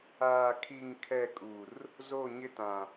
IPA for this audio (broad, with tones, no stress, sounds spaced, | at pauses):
aː˨ kʰ i˨ ŋ kʰ ɛ˨ kʼ u˨ r | z o˦˨ ɲ ɪ˦ t ã˨